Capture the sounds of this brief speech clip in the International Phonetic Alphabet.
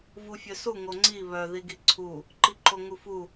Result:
v u fʲ œ s u ŋ o ŋ͡ǀ i β œ ð i ɡ i ǀʰ u | ǃ i ǃ o ŋ u f u

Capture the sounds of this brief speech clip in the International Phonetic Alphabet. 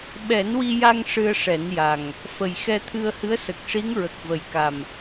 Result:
ɓ ɛ˨˩˦ n w i˧ j a˧ ŋ ʂ ɨ˧ ə̯ ʂ ɛ˨˩˦ n j a˨˩ ŋ | f ə˨˩ j x ɛ˧ t̪ʰ ɨ˧ ə̯ h ɨ˧˥ ə̯ s ə˨˩ k̚ ʂ i˧˥ ŋ ɹ ə˨˩ k̚ v ə˨˩ j k a˨˩ m

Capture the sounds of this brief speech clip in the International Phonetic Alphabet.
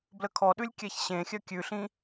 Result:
b l ə kʰ ɔ ɗ ʉ lʲ kʲ ɛ ç ɕ ẽ xʲ œ kʲ ʉ ɬ ĩ

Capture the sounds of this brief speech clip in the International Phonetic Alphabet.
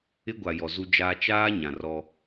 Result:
ɪ˦ ɡʷ a˨ j ɔ˨ z u˦ d͡ʒ aː˦ t͡ʃ aː˦ ɲ ã˨ r ɔ˦

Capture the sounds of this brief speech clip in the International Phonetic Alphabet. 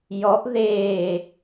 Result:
j ɔ ʔ ð eː

